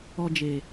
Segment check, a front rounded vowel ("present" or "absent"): absent